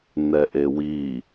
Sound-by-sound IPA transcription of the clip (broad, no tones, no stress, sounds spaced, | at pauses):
n ɛ ʔ e w i